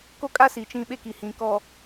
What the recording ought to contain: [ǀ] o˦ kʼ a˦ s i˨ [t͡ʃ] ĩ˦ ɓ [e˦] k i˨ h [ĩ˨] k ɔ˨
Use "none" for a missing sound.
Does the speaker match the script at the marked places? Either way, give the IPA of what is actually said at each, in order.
k, t͡ʃ, e˦, ĩ˨

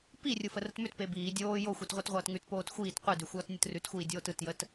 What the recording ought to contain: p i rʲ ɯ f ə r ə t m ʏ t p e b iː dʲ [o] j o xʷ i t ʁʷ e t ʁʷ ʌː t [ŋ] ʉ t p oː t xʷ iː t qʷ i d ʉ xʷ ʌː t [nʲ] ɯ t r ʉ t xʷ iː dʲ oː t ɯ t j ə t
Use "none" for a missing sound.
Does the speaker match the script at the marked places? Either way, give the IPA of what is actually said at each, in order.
oː, ŋ, nʲ

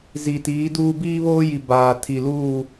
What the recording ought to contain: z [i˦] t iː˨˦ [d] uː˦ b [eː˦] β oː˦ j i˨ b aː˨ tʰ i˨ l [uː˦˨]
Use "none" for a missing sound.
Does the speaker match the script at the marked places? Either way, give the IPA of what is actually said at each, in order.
i˨, d, iː˦, uː˦˨

